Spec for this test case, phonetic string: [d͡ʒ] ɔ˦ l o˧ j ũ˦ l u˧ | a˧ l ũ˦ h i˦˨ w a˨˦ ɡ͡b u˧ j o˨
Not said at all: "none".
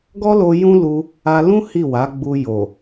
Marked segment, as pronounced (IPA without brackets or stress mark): ɡ